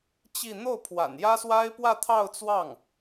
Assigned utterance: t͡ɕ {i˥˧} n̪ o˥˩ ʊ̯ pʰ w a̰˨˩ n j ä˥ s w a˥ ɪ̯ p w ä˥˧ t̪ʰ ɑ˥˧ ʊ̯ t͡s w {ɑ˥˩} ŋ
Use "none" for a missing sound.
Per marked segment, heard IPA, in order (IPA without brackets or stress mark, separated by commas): i˥˧, ɑ˥˩